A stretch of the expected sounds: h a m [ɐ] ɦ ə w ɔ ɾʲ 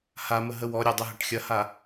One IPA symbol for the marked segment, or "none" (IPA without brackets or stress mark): ə